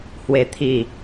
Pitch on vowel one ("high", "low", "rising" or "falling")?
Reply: low